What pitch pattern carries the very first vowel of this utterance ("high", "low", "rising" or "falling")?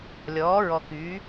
rising